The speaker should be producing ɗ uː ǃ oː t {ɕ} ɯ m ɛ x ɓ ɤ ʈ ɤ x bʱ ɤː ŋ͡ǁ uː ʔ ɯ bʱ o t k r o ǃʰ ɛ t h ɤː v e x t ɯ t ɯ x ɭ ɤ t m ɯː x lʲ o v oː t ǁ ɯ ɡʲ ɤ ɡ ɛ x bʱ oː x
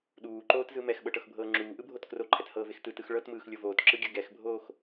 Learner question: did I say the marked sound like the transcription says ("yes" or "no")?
no